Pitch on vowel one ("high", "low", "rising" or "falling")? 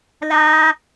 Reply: high